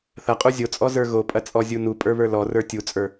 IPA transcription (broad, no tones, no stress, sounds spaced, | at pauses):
θ ɐ qʼ u zʲ o t͡sʼ ɔ z ə˞ ɣ o pʼ ɐ t͡sʼ ɔ zʲ u n u pʼ ə˞ β ə˞ l ɔ r ə˞ tʲ u t͡sʼ ə˞